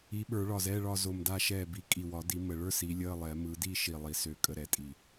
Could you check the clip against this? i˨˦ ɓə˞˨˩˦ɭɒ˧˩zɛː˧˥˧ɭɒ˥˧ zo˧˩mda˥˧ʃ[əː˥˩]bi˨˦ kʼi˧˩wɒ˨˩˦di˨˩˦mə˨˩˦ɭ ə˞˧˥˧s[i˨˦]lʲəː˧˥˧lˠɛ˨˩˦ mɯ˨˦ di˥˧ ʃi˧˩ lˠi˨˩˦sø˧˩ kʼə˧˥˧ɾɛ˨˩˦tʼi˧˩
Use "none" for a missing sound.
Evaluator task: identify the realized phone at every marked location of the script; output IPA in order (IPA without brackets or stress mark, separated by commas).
ɛː˥˩, i˨˦